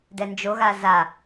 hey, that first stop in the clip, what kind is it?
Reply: plain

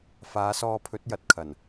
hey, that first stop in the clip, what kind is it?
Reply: aspirated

